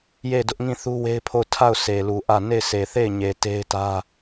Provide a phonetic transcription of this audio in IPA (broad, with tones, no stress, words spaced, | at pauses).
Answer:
je˦˨dʊ˦ʔŋĩ˦˨ θu˦we˦ɪ̯pʰo˦˨ʊ̯ tʰa˦˨ʊ̯ sʰe˨lu˨ʔä˦˨ ne˦˨ɪ̯sʰe˨ θe˦˨ɪ̯ɲe˨ te˦ɪ̯tä˦